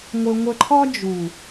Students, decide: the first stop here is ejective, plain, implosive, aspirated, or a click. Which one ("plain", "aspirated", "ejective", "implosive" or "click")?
click